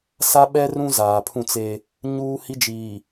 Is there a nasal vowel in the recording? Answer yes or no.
yes